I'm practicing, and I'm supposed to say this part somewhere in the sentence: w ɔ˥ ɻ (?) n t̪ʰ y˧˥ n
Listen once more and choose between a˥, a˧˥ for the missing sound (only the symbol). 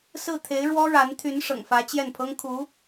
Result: a˧˥